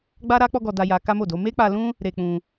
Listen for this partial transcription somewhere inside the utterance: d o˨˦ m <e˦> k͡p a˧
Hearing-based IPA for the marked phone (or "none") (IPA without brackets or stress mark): e˦